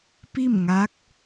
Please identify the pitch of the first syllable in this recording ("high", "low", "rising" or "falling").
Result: falling